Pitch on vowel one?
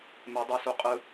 rising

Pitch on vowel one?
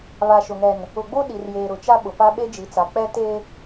low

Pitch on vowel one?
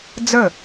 falling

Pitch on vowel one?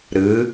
rising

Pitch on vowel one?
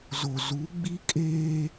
low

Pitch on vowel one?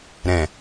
low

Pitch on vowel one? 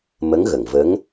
rising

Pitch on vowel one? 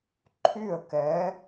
falling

